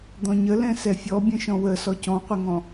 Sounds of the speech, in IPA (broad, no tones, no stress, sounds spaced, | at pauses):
d̪ ɔ̃ ɲ ə l ɛ̃ s ɛ fʲ ɔ bʲ ə̃ ʃ ɔ̃ w ə s ɔ c ɔ̃ qʷ ɪ ŋ ɔ̃